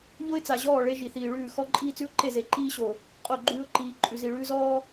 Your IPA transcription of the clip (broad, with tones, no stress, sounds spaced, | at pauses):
ʎ o˦ ɪ̯ t͡s a˨ ʑ ɔː˦˨ ɭ e˦ ʒ i˨ θ iː˨ ɭ ʉː˦˨ x ɔ˦ ǃʼ iː˦ t͡s ʉ˦ ʊ̯ ǃ e˦˨ z e˨ ǃ iː˦ ɕ o˨ | qʼ o˦˨ ɡ͡ǃ ʉː˦ ʊ̯ ǃ iː˨ ǃʼ ʉ˨ z i˨ ɭ ʉː˦ z ɔː˦